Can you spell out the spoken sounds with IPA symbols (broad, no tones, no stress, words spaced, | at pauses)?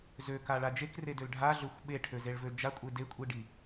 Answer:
zøkaɭa d͡ʒekredøl ɖʱaɮøxʷ ɓeʈʰøzeɭvø d͡ʒakʷʼe dekʷʼiɖi